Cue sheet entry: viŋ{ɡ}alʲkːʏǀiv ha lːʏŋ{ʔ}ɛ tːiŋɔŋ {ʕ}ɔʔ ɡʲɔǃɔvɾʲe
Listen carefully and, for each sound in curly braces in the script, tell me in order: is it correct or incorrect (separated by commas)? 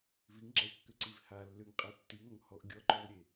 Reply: incorrect, incorrect, incorrect